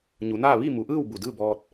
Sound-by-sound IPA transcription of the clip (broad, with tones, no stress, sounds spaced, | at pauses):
ɲ u˩˧ n aː˥˨ ʋ i˥˨ m u˩˧ ʔ ɯː˥˨ w b u˧˩ d ɯː˥˨ b ɔː˧ t̚